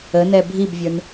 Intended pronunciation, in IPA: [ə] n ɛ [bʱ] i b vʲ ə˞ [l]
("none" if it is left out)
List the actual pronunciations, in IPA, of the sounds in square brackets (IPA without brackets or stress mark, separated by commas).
ə, bʱ, n